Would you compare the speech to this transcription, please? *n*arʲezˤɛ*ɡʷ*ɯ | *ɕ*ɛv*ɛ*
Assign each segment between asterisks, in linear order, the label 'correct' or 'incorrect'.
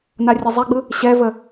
correct, incorrect: ɡ͡b, correct, incorrect: ə

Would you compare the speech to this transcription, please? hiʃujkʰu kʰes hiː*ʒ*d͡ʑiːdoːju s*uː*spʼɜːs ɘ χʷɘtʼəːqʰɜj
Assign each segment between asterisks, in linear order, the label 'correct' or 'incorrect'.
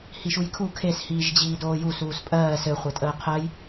correct, correct

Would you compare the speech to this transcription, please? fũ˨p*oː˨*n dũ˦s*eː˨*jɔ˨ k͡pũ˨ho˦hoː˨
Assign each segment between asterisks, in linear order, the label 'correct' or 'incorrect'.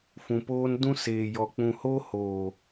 incorrect: oː˦, correct

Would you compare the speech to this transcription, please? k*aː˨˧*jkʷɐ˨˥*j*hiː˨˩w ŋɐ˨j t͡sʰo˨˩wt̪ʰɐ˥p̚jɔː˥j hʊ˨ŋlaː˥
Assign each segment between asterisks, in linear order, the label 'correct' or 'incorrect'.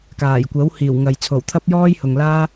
incorrect: aː˨˩, incorrect: w

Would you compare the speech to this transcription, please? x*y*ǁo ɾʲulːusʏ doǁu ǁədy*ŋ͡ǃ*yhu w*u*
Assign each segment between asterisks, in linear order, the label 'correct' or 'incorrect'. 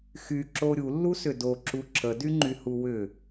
correct, correct, incorrect: ʏ

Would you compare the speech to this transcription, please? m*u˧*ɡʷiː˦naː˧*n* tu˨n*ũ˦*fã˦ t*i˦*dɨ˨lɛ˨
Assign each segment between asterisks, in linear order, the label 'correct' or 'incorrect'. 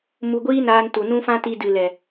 correct, correct, correct, incorrect: i˧

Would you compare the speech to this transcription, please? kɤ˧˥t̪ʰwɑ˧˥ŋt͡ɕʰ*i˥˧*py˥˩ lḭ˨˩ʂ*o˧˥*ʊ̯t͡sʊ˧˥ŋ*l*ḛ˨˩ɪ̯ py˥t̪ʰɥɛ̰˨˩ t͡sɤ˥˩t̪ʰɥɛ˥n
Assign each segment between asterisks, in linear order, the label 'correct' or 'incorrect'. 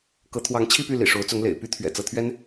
correct, correct, correct

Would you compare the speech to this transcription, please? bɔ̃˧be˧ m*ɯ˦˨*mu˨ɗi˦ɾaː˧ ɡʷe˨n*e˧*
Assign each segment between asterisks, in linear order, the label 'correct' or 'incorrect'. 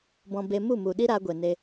incorrect: u˦˨, correct

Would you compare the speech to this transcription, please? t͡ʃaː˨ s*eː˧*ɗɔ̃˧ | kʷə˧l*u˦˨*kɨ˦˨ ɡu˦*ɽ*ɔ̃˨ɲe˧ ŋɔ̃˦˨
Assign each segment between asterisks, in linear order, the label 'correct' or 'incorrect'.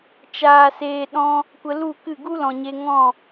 incorrect: eː˨, correct, incorrect: l

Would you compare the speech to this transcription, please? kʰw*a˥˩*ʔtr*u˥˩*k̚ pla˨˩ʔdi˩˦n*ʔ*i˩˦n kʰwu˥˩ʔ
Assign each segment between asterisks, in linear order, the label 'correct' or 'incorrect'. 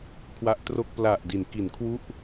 incorrect: a˦˥, incorrect: o˥˩, incorrect: k

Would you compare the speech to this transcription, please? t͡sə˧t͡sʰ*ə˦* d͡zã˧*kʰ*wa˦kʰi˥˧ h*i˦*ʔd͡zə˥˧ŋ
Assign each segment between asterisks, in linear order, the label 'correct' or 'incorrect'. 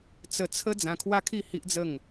correct, correct, correct

